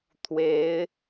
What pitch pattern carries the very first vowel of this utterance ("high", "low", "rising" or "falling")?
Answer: rising